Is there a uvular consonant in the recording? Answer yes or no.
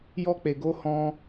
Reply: no